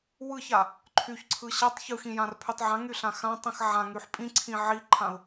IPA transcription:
w ɯ ç a | ǃʰ y ç ǀʰ ɯ ɕ a tˤ ç ɯ x ĩ j ã r pʰ y tˤ ʕ ã ŋ y ɬ ã x ã tˤ ĩ x ʕ ã ŋ y ħ pʼ ĩ ǀʰ ĩ ʕ i ǃʰ ã ʊ̯

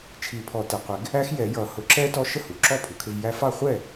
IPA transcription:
t͡ʃʰ i˨˩˦ pʰ ɔ˨˩˦ t ɛ˩ qʷ ɪ˨˩˦ ɡ | æ˦˥ x j ɛ˨˩˦ j ʌ˨˩˦ h ʊ˨˩˦ ǁ ɛ˦˥ t ɔ˦˥ ʃ ə˥˩ h u˩ ǁ ɔ˥˩ pʰ u˩ kʰ ɪ˧ v j æ˧ f ɑ˥˩ χʷ ɛ˥˩

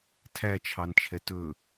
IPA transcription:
tʰ æ t͡ʃʰ ɑ n t͡ʃʰ ɛ t ɵ

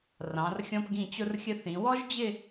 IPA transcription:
r ɑ̃˩˧ r xʲ ɔ̃˧ p ɡ ĩ˧˩ t͡ɕ ʊ˧ r xʲ ə˧ θ ĩ˩˧ w ɔ˥ ʒ d͡ʑ ɪ˥˧

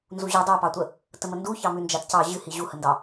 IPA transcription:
n z u ʑ ɨ dˤ u p ɑ tʷ ə | t ə m ə n d u ç ɑ m ʉ n d͡ʒ a t c ɑ ʑ ɨ h i ʑ u h ə n d ɑ

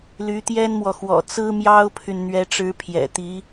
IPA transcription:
l y˧˥ t̪ j ɛ˥ n m w ɔ˨ x w ɔ̰˨˩ t͡s ɹ̩˥ m j ɑ˥ ʊ̯ pʰ y˨ n n̪ ɥ ɛ˧˥ ʈ͡ʂ ɻ̩˧˥ pʰ j ɛ̰˨˩ t̪ i˧˥

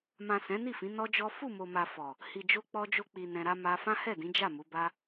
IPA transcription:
m ã˨ s ɛ̃˨˦ n i˦˨ f ĩ˨˦ n ɔ˦ d͡ʒ ɔ˦ f u˦˨ m o˨ m a˨ f ɔ˨ | h i˨ d͡ʒ o˧ k͡p ɔ˧ d͡ʒ o˧ k͡p i˨ n ɛ̃˧ ɾ a˦ m a˧ f ã˦ h ɛ˦˨ d ĩ˨˦ d͡ʒ a˦˨ m u˨˦ b a˦

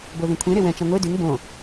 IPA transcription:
b o ð ẽ kʷʰ ẽ ɾ e w ɛ̃ t͡ʃ ã ŋʷ e d y ŋ b õ

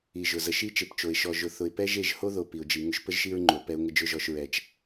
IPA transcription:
i˨ ʒ ʊ˨ z ə˨ ʃ i˦ t͡ʃ e˨ p t͡ʃ o˨ ɪ̯ ʃ ɔ˨ ʒ ʊ˨ θ ʊ˨ ɪ̯ p ɛ˦ ʒ e˦˨ ʒ h o˦ ð o˨ p i˨ ʊ̯ d͡ʒ i˨ ŋ ʊ˦ ʃ p ə˦ ʒ ʃ i˦ ɹ ŋ͡ǃ o˨ p ɛ˦ ʊ̯ ŋ ə˦ d͡ʒ ʊ˦ ʒ ɔ˦ ʃ ɹ ɛ˦ t͡ʃ

